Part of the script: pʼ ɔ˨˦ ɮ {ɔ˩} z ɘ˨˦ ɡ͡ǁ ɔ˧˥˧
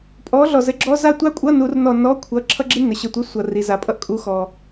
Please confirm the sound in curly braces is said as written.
yes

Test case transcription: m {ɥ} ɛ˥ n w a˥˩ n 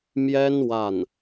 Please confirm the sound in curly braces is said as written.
no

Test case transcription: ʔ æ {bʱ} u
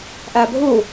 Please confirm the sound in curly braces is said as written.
yes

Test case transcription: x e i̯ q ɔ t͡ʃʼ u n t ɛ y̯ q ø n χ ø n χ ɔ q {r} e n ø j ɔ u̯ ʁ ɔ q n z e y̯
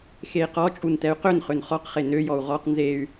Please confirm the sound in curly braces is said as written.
no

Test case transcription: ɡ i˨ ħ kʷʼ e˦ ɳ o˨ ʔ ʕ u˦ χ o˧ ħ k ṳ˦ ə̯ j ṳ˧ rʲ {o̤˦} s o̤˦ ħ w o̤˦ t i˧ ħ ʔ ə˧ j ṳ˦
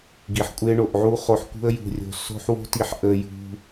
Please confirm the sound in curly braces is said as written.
no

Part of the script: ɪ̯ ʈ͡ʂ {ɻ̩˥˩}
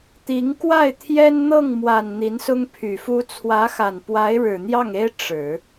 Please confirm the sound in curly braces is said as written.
no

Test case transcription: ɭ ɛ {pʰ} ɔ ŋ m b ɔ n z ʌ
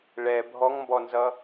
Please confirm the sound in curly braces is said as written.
no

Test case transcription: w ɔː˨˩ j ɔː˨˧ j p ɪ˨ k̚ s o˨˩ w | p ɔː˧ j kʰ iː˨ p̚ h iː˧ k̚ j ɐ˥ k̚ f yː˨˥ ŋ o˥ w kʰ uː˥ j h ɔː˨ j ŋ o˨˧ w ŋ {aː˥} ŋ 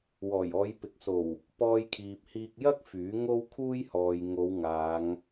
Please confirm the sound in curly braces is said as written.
no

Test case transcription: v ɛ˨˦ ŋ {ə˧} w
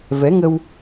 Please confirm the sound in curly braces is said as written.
yes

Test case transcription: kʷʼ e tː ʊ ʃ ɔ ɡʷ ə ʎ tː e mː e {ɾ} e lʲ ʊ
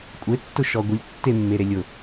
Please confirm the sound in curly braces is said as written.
yes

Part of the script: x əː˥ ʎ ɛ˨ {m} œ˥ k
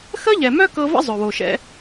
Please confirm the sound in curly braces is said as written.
yes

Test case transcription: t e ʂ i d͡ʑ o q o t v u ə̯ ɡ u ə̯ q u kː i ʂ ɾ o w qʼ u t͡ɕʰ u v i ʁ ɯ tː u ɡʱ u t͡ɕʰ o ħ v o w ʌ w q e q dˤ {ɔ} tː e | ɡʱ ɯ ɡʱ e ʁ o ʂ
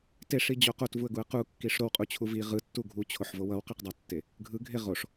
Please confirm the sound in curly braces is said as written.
no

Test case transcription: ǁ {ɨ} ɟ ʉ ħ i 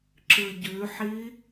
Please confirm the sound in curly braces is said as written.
yes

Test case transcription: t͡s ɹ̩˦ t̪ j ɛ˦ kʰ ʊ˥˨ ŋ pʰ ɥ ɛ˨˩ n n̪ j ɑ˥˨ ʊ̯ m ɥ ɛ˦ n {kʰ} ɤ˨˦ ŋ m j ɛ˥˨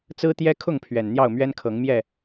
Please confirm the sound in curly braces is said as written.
yes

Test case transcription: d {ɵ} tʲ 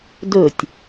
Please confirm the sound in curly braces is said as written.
yes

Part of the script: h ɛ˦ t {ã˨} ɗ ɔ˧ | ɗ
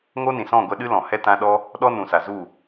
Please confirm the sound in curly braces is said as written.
no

